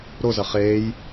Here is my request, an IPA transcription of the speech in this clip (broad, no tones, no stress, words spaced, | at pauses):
ɾozɐ χeːj